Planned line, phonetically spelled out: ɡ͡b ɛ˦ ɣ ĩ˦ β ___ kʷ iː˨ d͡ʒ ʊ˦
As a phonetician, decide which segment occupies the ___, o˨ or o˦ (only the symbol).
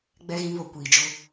o˨